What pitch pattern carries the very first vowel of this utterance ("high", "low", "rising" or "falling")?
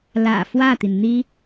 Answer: low